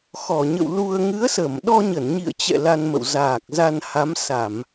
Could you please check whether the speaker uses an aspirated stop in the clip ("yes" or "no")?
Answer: no